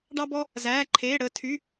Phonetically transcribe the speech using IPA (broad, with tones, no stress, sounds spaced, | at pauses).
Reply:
ɖ ɑ˧ b ɔ˧ | z æː˩˧˩ ǃʰ eː˩˧˩ ɽ əː˧ tʰ y˩˧˩